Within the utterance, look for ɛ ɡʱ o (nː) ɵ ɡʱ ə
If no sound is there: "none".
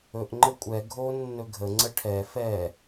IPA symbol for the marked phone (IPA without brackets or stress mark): nː